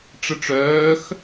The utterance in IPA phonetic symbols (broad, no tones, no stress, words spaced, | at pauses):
ʈ͡ʂəʈ͡ʂœːx